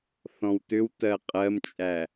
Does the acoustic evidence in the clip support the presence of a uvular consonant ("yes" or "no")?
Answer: yes